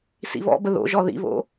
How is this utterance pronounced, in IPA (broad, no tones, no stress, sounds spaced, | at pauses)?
s ḭ β ɔ̰ b ə ð o̰ ʒ ɔ ð ḭ β o̰